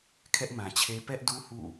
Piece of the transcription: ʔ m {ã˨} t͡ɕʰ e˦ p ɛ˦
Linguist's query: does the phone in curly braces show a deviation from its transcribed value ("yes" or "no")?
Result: no